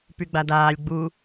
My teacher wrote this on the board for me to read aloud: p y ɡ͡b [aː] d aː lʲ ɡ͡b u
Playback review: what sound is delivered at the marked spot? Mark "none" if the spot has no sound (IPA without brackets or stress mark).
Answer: a